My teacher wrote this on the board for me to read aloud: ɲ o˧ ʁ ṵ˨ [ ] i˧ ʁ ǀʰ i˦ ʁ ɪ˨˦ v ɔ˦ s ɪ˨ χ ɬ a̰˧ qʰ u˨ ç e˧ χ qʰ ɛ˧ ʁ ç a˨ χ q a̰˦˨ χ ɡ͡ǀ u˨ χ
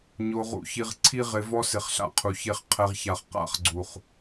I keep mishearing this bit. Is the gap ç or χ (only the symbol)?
ç